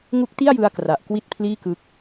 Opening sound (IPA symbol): ŋ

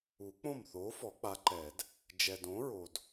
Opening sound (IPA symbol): u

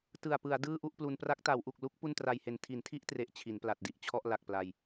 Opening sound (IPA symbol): t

